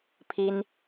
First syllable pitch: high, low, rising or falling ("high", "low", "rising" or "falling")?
high